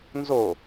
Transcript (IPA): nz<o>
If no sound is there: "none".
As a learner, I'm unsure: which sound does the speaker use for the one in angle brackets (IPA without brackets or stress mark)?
o